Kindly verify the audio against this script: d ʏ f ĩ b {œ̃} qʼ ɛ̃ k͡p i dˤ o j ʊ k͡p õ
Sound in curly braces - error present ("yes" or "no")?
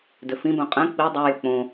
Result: no